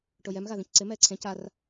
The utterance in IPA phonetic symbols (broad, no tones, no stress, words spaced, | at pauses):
ʈojɛm ɣaðĩcǀɪ mɛːǀʰẽ car